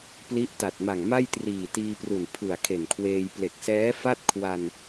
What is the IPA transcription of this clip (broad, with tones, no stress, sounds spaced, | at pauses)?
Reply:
p l i˦˥ ʔ t a˨˩ t̚ m a˨˩ ŋ m a˥˩ j t r iː˨˩ t iː˧ p r u˨˩ n pʰ ɯ˨˩ a̯ kʰ e˨˩ n kʰ w eː˧ j p l e˨˩ k̚ s ɛː˦˥ f a˥˩ t̚ kʰ w a˧ n